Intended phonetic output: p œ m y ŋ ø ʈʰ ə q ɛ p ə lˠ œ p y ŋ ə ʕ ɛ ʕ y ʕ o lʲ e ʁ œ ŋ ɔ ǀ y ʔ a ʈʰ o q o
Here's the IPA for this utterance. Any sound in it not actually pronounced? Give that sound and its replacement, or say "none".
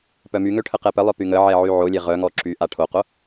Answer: ǀ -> ǁ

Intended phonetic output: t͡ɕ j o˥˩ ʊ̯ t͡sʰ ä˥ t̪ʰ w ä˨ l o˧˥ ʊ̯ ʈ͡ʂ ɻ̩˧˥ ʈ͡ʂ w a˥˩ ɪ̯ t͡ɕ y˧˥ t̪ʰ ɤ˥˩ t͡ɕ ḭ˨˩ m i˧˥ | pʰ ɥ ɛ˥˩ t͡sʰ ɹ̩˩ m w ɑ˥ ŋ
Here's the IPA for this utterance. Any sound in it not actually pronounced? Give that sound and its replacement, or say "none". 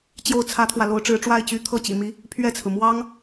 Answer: none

